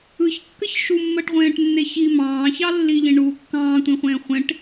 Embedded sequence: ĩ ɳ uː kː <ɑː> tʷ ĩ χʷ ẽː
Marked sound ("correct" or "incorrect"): incorrect